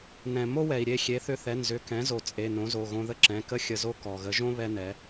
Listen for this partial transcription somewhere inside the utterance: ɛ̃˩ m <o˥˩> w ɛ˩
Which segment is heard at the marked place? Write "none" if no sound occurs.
o˥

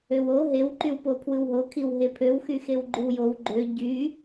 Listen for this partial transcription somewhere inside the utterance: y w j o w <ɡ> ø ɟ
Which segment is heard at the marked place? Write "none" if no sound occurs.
ɡ͡ǃ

